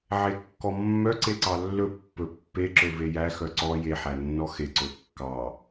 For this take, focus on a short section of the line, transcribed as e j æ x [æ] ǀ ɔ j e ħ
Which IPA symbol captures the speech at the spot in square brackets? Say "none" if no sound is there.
œ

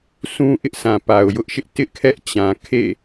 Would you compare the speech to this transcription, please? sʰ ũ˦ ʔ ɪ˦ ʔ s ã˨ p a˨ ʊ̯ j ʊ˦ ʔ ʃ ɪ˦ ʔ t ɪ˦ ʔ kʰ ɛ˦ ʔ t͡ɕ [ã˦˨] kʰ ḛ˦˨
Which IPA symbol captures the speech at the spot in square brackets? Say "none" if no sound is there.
ã˨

